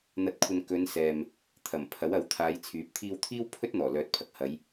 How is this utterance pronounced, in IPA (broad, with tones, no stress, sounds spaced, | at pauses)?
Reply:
n̪ ɐ˧ t̚ kʷʰ ɐ˧ n k ɵ˨˧ n s ɛː˨ m | t̪ʰ ɐ˨˩ m pʰ ɐ˨˥ w ɐ˨˥ w t̪ʰ aː˨˧ j t͡sʰ yː˨˥ p̚ t̪ʰ iː˧ w t̪ʰ iː˥ w pʰ ɵ˥ t̚ n̪ ɔː˨˩ l œː˨˥ t̚ pʰ ɐ˧ k̚ h ɐ˨˧ j